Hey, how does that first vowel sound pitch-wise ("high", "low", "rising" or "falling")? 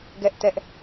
high